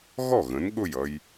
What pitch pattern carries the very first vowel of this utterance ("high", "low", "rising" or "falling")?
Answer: falling